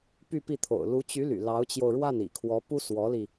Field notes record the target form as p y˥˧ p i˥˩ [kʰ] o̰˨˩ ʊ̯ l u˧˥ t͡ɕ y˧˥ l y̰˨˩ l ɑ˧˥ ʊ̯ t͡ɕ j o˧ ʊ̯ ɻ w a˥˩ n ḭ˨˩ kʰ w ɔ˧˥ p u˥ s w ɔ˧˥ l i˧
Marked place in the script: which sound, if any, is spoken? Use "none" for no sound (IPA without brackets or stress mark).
t̪ʰ